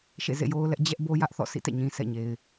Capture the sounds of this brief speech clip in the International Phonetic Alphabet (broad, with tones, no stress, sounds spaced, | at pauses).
ʃ ḛ˦˨ z ḛ˦˨ j o˦ ʊ̯ l ɛ˦ ʔ d͡ʑ ɛ˦ ʔ b o˦ j ä˦ ʔ θ ɔ̰˦˨ s ḭ˦˨ t ɛ̰˦˨ ɲ ĩ˨ s ɛ̰˦˨ ɲ e˨ ɪ̯